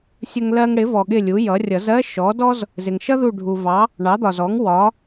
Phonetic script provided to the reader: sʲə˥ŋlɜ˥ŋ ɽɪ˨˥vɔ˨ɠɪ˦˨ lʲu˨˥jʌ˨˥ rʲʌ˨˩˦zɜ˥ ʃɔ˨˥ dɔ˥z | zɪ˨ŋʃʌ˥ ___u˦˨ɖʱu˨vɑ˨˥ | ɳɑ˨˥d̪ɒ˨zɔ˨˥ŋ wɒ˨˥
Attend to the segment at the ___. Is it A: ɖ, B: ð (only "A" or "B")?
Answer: B